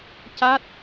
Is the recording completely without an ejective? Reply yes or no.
yes